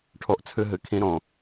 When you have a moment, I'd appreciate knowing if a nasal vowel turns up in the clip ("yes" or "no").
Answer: yes